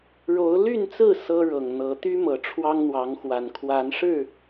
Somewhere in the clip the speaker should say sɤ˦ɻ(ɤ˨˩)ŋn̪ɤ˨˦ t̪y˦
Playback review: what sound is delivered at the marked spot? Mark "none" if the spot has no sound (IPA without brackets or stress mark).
ɤ˨˩